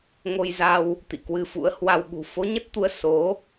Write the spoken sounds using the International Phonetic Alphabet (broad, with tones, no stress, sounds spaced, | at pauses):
ŋ o˧ j z a˧ w | t̪ ḭ˧˨ k w ɨ˧ f ṵ˧˥ ə̯ h w a˧ w ɓ ṳ˨˩ f o˨˦ ɲ ə˦˥ t̚ t̪ u˧ ə̯ s o˨˦